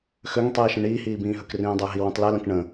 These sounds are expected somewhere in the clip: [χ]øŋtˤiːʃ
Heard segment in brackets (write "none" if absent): x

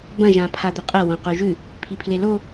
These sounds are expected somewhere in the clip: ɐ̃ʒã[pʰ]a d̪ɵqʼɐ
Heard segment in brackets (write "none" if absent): pʰ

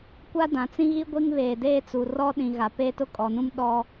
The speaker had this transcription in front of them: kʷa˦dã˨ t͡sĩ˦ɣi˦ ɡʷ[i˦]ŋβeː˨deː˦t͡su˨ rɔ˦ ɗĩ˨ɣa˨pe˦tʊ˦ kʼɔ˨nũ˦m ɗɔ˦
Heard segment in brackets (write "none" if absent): i˦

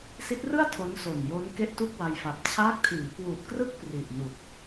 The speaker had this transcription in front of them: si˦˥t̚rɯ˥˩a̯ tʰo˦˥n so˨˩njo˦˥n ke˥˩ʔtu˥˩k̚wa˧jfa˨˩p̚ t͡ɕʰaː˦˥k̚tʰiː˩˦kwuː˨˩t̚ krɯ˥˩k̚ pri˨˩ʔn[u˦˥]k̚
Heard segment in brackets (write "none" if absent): u˨˩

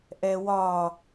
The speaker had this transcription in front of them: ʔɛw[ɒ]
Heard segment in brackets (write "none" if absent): ɒ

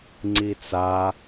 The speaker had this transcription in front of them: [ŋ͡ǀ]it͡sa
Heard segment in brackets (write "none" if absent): ŋ͡ǀ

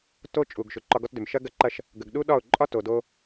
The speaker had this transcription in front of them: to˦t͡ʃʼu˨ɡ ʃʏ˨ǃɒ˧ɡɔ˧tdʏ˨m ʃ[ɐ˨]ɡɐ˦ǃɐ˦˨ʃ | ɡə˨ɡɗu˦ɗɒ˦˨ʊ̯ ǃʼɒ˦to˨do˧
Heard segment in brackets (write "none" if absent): ɐ˦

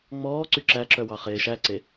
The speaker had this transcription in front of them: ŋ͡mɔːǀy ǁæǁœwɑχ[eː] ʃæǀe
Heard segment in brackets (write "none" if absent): eː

